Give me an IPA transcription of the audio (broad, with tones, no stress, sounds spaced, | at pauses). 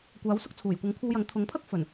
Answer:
kʷ aː˨˥ w s ʊ˥ k̚ t͡sʰ uː˨˩ j kʷ ɐ˨˥ ŋ kʷʰ ɐ˧ w j ɐ˨˥ ŋ t̪ʰ ʊ˨˥ ŋ pʰ ɐ˥ k̚ f ɵ˨˩ n